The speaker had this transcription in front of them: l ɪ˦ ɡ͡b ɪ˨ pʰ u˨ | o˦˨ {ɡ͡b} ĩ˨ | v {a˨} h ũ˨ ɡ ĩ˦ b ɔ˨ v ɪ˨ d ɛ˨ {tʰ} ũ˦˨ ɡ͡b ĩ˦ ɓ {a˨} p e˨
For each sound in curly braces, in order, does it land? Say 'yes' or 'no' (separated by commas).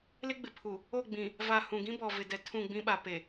yes, yes, yes, yes